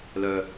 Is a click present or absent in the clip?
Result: absent